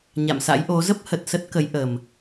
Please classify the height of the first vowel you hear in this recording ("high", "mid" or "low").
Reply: low